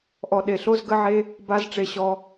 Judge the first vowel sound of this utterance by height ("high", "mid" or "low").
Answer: mid